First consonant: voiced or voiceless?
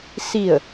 voiceless